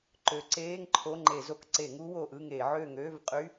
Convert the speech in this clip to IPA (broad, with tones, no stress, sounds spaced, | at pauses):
ǃ ø˨˦ ǀ eː˧˥˧ ŋ ǃʰ o˧˥˧ ŋ͡ǃ e˧˩˧ z o˨˦ k ǀ e˧˩˧ ŋ u˦˥ w o˨˩ ʔ ɯ˦˨ ŋ e˧˩˧ ʕ ø˦˨ ŋ ø˧˥˧ v qʼ y˧˥˧